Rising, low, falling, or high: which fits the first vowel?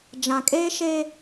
low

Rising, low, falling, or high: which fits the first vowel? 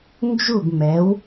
falling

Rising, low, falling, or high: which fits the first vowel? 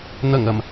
low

